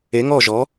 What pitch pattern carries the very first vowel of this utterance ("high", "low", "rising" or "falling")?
rising